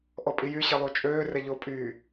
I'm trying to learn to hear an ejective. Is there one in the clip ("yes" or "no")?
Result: yes